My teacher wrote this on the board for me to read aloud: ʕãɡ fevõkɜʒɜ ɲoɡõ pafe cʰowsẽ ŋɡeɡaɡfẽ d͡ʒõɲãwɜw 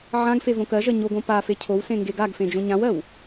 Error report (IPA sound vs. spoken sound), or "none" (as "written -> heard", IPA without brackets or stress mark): none